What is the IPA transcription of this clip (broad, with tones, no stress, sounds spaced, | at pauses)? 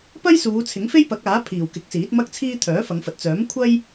p ɐ˥ j s uː˨˧ t͡sʰ ɪ˨˥ ŋ f e˥ j p ɐ˨˥ k̚ aː˨˥ pʰ iː˨˩ w k ɪ˨˥ k̚ s iː˨˥ t̚ m ɐ˥ k̚ t͡sʰ iː˥ t̪ʰ œː˨˥ f ɐ˨˧ ŋ f ɐ˨ t̚ t͡s œː˨˥ m kʷʰ ɐ˥ j